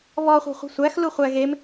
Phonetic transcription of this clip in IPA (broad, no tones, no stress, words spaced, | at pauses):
βɔ χʷɛ̤χʷɛ̤sʷæx luχʷæɣem